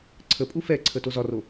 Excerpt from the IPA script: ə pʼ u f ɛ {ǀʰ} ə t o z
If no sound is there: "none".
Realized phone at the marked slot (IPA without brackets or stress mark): ǀʰ